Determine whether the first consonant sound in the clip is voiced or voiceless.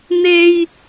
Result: voiced